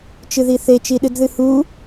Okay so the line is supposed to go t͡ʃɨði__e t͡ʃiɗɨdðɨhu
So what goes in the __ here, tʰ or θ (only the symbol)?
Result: θ